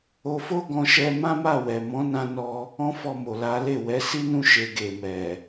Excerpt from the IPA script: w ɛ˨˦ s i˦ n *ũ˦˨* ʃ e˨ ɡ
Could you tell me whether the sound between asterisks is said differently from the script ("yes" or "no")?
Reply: no